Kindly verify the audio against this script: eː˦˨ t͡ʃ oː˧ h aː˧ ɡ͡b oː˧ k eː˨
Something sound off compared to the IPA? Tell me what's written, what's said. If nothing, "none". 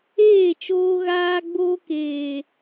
h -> ɣ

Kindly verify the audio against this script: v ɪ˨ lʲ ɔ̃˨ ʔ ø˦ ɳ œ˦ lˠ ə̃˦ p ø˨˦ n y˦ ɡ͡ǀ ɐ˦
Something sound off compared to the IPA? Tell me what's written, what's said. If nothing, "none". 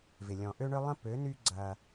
none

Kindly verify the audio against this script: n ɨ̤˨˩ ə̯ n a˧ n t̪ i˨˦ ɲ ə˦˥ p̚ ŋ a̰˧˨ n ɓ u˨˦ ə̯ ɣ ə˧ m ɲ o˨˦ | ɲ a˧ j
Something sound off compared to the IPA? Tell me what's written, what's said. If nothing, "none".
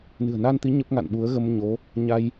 none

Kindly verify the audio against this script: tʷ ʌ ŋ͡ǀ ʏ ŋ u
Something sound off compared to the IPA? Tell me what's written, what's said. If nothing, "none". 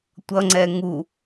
ʏ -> ɛ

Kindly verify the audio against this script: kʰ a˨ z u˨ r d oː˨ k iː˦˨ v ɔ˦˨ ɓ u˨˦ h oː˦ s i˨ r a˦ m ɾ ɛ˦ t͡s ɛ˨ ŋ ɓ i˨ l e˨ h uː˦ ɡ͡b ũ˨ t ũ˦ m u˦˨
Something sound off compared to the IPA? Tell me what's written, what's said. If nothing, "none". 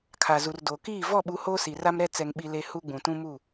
none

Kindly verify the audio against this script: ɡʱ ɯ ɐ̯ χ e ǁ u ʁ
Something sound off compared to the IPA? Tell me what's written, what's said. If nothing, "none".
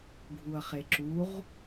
ɯ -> u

